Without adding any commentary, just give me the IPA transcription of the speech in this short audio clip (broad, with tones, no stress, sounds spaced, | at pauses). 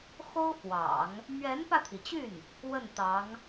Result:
x o˥ ʊ̯ f w ɑ̰˨˩˦ ŋ | m ɥ ɛ˧˥ n p ä˧ t̪ʰ i˩ t͡ɕ y˥˩ n | w ə˥˩ n t̪ ɑ˧˥ ŋ